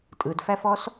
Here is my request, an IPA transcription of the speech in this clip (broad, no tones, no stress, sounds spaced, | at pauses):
tʼ ɯ d f æ f ɔ s